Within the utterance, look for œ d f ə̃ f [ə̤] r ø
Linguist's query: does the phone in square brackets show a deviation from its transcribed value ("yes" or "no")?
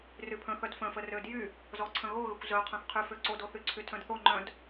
yes